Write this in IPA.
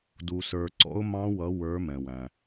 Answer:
du˩sə˞˩ ǀɔ̰˦˥ʊ̯mɑ̃˦˥wʌ˨˦ wə˞˨˦ mɛ̃˩wæ̃˩

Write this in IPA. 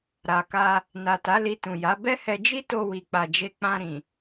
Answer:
ɾa˨ka˧ | na˨ta˨˦ li˧tũ˨ja˨˦ bɛ˦hɛ˧ d͡ʒi˦to˧wi˨k͡pa˨ d͡ʒe˧ k͡pã˧ɾĩ˨

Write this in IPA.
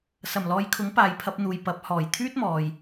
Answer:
sɐ˨˩mlɔː˨˧jkʰʊ˨˥ŋ paː˨jpʰɐ˧p̚n̪uː˨j pɐ˨p̚ hɔː˨˩j t̪ʰyː˥t̚mɔː˨j

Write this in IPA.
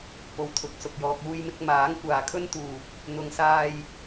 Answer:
po˨wt̪ʰʊ˨k̚sʊ˨k̚jɔː˧k̚ uː˧jmɪ˧k̚ maː˨˥ŋkʷaː˨kʰɵ˥nt̪uː˨p̚ | n̪ʊ˨˧ŋsaː˧j

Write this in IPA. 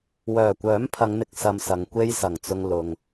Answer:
wœː˨˩kʷœː˨˥mpʰɐ˨˧ŋn̪ɪ˨k̚ sɐ˧msɐ˨ŋkʷe˥j sɐ˨˩ŋt͡sʊ˧ŋ lʊ˨ŋ

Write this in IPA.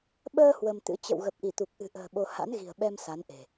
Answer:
ɓəː˧ hwə˧mt̪ɨ̰˧˥ t͡ɕə̰˧˨wɣə˨˩p̚ʔi˧˩ t̪u˨˩k̚ʔɨ̤˨˩ʔə̤ː˨˩ ɓo˧ ha̰˧˥nɣi̤˨˩ə̯ ɓɛ˧m sa˨˦nʔe̤˨˩

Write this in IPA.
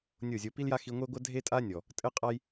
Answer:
nʲo˦˨zʲo˧ pi˦lja˦ xi˧ŋʷe˦ɡʷɐ˦ dʱe˦tʼa˦nʲɔ˨ | tʼɘ˦qʼa˦j

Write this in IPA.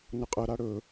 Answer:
nəqʼə ɾaɽɵ

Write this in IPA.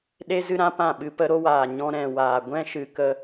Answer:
ɗe˦zɨ˦ɾã˦ pã˦˨ɓɨ˧pə˦ ɾo˦waː˨ɲɔ̃˧ ɾɛ̃˨waː˨ ɡʷɛ̃˦ʃɨ˨kə˧

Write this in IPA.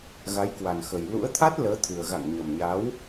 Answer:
ɣa˨˦jkwa˨˩nxə˨˩j lṵ˧˥ə̯ t̪ʰa˦˥t̚ləː˨˦t̪ʰɨ˨˩ə̯ ɣa̰˧˨ŋɲə˨˩mɲa˨˦w

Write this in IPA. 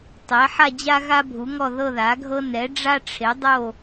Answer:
tˤɛ˩˥ ħa˦˨d͡ʑa˦ ɣa˦bʱu˩˥ŋɔ˦˨ ðɤ˦˨ða˩˥ɡʱɤ˦ nɛ˩˥ɖ͡ʐa˦ ʈ͡ʂʰe˩˥ dˤo˦˨

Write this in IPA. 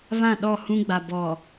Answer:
βã˦˨ɗɔ˦˨hũ˦ɡ͡ba˨ bɔ˨

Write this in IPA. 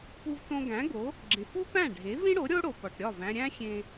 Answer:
pu˧vtõ˧ɡæ̃˩˥ ɡo˩˥ | ɡ͡ǁẽ˩fu˥ pæ̃˥˩ɖʱe˩˥vĩ˥ɽo˩˥ ɾʲo˥ɽo˩pɒ˩ʈɾʲɒ˥˩v æ̃˧ɾʲæ̃˥xʲẽ˧

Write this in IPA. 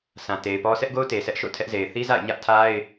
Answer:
sʰã˨te˨ɪ̯pɔ˦ sʰɛ˦ʔɡo˦ʊ̯te˨ sɛ˦ʔʃo̰˦˨tʰɛ˦ʔze˨ɪ̯ θi˦za̰˦˨ɪ̯ ɲä˦ʔtʰa˦ɪ̯

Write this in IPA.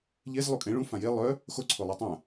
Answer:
ʎez lˠukʼẽ ɭũfã je lˠœ | xo ǀʰolˠatˤã

